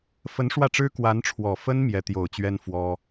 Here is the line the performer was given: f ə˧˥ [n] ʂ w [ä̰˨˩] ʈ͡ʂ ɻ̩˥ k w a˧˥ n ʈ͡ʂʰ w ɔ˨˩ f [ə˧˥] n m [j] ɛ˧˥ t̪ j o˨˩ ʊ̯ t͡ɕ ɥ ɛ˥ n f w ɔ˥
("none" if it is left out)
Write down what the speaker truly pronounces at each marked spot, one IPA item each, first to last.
n, ä˥˩, ə˥, j

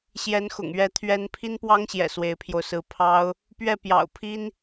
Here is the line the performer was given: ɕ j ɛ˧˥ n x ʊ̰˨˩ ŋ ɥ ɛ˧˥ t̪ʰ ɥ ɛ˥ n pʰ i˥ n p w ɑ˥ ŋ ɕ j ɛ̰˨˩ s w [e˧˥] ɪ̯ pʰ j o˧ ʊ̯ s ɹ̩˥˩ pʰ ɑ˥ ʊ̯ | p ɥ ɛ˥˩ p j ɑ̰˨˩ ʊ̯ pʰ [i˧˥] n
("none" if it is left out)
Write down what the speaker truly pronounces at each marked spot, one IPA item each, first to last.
e˧˥, i˥

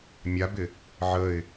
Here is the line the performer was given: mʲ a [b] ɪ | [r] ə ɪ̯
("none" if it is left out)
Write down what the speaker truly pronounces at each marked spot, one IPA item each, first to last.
b, ʕ

